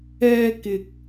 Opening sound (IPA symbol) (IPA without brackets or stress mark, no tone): ɛː